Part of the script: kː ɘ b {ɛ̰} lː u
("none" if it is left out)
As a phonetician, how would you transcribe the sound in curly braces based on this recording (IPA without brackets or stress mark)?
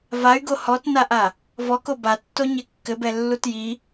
ɛ